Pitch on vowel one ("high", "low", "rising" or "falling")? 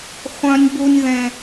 high